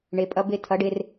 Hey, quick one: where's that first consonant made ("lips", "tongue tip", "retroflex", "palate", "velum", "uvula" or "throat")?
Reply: retroflex